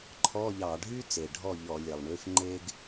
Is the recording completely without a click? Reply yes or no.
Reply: no